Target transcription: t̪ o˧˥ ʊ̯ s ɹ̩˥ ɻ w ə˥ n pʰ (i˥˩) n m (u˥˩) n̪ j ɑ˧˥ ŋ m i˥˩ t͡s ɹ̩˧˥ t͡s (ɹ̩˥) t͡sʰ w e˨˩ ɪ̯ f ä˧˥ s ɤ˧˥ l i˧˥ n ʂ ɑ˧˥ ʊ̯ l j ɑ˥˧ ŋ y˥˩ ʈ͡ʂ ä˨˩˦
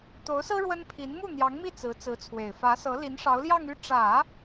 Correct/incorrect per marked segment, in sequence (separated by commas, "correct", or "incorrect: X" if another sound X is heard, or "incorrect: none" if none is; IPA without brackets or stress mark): incorrect: i˧˥, correct, incorrect: ɹ̩˧˥